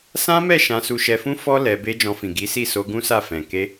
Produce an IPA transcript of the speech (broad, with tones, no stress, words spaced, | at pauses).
sã˦mɛ˦˨ ʃã˧su˧ʃɛ˧fũ˦ fɔ˦ lɛ˧ be˧ d͡ʒɔ̃˧fĩ˨ ɡi˨˦si˦˨ so˧ɡũ˦sa˦˨ fɛ̃˨ ke˧